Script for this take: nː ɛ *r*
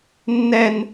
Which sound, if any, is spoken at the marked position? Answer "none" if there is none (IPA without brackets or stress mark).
n